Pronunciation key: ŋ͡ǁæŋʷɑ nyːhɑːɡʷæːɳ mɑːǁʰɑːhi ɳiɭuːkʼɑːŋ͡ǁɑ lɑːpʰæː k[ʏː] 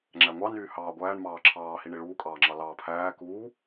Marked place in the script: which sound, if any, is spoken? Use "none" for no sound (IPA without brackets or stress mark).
uː